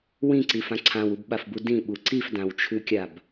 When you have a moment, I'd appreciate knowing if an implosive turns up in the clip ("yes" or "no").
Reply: yes